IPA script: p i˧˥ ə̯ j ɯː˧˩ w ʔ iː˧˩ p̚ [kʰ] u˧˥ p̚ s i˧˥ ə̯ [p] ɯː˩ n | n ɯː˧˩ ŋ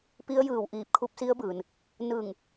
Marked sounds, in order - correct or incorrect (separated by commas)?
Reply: correct, incorrect